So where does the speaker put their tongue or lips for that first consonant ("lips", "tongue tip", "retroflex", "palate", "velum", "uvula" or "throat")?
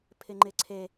lips